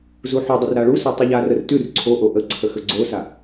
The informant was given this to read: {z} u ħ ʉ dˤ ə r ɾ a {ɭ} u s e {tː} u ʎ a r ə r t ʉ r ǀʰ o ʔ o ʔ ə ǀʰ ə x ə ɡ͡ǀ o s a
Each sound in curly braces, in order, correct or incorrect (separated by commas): correct, correct, incorrect